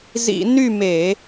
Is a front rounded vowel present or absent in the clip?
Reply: present